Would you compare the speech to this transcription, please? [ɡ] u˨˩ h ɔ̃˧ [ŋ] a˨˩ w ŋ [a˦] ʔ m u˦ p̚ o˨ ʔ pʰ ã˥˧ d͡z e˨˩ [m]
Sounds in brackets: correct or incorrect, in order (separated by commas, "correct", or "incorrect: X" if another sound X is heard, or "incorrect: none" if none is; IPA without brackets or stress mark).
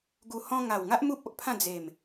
correct, correct, correct, correct